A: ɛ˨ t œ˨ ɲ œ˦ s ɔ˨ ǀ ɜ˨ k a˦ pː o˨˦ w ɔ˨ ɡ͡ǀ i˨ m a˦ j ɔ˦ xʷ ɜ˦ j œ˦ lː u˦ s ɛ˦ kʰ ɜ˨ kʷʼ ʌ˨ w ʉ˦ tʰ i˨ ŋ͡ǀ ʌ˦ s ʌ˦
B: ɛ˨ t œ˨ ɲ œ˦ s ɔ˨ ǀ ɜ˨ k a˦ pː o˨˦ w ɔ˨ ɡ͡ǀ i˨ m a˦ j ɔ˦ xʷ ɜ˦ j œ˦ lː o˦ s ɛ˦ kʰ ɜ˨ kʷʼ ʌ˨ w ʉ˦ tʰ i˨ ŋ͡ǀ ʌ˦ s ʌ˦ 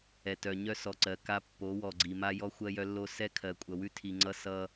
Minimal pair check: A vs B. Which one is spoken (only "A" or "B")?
B